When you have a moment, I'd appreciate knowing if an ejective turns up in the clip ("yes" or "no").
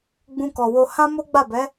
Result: no